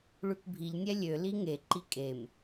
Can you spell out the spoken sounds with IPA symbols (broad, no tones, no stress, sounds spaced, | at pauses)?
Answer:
ɭ ʉ k bʱ i ʎ nʲ ɛ lʲ ø l i ŋ e ǃ i kʼ e m